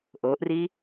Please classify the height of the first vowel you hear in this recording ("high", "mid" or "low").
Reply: mid